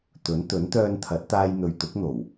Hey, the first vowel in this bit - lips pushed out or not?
yes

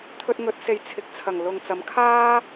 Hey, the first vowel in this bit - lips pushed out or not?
yes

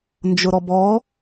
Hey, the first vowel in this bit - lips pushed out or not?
yes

